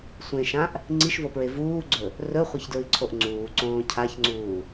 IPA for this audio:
sʷ ẽ ʃ ã ʔ | ŋ͡ǀ i ʃ v o p ɹ e v uː ɡ͡ǀ ɵ | r ɵ χʷ ɐ ç d ɹ ɨ ǀʰ o ʔ ŋ͡ǀ uː ǀ õː cʰ a ç ŋ͡ǀ uː

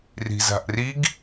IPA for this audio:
r i̤ z a̤ ʔ r i ɡ

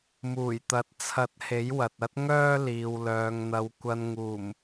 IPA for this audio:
m uː˨˩ j t̪ ɐ˨˥ t̚ t͡sʰ ɐ˨˥ t̚ h e˨˥ j w ɐ˨ t̚ ɐ˥ t̚ ŋ œː˥ l iː˨ w l œː˨ ŋ n̪ ɐ˨˧ w kʷ ɐ˧ n ŋ uː˨˩ m

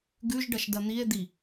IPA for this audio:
ɡ ʉ ʒ ɖ ɐ ʃ d ɐ n̪ i e̯ d̪ i

